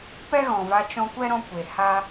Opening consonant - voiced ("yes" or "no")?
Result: no